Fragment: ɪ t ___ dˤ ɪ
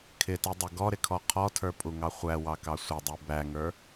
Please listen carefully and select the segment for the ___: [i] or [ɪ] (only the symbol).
i